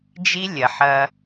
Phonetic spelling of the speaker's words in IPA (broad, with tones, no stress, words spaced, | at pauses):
d͡ʒi˦lʲɐ˨ħɐ˦